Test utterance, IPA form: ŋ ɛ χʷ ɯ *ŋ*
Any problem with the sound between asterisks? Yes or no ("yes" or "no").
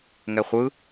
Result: yes